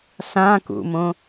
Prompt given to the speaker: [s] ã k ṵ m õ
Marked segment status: correct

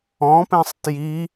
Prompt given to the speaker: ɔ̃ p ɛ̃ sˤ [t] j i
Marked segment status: correct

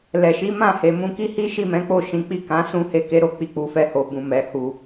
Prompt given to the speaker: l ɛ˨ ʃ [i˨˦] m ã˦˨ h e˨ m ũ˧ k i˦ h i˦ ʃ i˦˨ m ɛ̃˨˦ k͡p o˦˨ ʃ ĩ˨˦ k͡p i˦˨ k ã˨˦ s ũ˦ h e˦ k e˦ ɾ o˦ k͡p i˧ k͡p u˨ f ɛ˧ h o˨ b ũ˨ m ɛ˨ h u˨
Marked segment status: correct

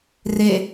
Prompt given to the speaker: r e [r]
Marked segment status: incorrect: none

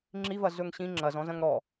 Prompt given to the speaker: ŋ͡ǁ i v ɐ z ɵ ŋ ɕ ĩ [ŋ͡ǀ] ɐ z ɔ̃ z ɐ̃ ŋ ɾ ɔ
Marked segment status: incorrect: ŋ͡ǁ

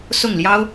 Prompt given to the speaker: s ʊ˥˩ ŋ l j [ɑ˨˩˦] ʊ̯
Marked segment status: incorrect: ɑ˥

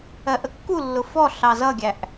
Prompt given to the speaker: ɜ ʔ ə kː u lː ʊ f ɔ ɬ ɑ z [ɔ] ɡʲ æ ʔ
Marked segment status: incorrect: ʌ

